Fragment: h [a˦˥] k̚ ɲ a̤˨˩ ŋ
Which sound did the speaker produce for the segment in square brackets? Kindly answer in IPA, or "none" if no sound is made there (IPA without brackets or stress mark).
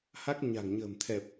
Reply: a˦˥